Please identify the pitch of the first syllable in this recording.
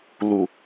low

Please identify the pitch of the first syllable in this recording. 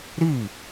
falling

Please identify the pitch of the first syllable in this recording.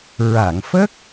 low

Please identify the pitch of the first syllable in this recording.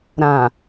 low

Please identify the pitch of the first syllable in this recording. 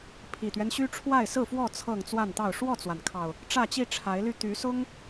low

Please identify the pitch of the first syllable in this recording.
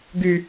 high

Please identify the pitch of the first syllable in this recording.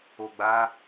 low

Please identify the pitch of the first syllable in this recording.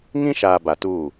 high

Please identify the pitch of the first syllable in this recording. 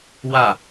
falling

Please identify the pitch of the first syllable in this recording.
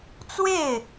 falling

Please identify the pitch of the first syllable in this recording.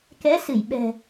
rising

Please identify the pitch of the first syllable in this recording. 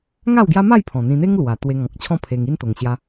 falling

